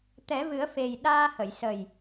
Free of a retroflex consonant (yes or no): yes